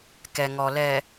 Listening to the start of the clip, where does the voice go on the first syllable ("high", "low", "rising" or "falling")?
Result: low